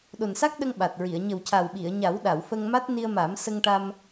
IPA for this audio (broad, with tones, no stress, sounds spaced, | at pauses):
ɗ o˨˩ n s a˦˥ k̚ ɗ ə˧ ŋ ɓ a˨˩ t̚ ɹ i˨˩˨ ə̯ ɲ ə˨˩ w c a˨˩ w ɓ i˨˩˨ ə̯ ɲ a˨˩˦ w ɗ a˨˩˨ w f ə˧ ŋ m a˦˥ t̚ n i˧ ə̯ m a˨˩˦ m s ə˧ ŋ ʈ a˧ m